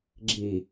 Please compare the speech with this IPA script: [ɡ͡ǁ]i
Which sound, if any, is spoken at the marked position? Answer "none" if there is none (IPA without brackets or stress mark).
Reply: ɡ͡ǁ